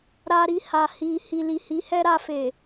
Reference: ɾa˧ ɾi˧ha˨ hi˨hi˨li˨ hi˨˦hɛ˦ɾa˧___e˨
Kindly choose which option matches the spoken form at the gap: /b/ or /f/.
f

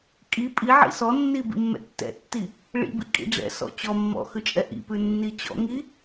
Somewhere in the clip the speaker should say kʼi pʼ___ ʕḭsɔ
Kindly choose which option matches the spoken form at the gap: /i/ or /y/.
i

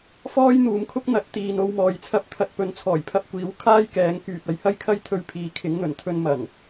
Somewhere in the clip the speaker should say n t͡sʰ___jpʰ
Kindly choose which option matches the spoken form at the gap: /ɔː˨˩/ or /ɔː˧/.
ɔː˨˩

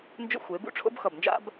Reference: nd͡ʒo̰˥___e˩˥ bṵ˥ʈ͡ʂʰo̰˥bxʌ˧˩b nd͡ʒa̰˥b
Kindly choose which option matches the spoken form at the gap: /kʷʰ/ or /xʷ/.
xʷ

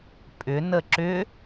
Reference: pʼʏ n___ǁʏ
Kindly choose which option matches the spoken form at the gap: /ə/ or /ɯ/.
ə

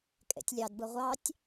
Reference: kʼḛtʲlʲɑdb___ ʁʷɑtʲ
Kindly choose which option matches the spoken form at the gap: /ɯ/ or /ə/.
ɯ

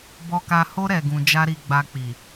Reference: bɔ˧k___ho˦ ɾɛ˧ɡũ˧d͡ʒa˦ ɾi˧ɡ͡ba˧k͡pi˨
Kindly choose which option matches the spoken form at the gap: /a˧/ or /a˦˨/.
a˧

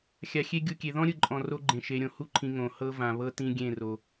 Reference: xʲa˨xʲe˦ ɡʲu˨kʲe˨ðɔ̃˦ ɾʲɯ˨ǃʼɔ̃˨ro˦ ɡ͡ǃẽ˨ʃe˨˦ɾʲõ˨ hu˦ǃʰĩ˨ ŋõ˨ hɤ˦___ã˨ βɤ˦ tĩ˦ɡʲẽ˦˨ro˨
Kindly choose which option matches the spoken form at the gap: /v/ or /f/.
v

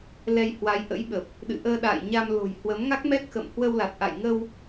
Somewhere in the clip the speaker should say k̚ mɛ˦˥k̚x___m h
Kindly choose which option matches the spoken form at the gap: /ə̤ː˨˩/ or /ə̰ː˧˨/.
ə̰ː˧˨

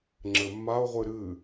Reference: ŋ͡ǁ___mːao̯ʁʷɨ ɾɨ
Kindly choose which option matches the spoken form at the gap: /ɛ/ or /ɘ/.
ɘ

